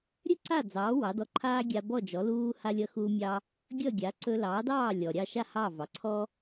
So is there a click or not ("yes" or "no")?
yes